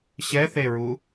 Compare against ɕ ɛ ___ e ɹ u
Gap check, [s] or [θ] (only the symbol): θ